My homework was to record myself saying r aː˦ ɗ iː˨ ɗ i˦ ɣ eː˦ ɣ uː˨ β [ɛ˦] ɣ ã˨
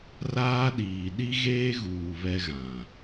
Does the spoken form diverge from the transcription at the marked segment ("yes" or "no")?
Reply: no